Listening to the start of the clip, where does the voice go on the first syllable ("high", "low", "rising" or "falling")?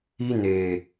high